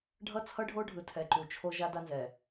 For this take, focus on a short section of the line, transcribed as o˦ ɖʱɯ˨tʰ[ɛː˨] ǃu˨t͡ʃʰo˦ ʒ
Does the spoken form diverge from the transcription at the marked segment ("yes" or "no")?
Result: yes